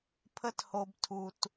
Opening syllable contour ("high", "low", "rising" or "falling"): high